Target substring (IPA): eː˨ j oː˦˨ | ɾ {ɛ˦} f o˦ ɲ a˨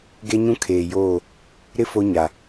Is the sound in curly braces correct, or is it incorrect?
incorrect